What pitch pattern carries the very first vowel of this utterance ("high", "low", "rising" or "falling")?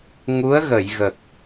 rising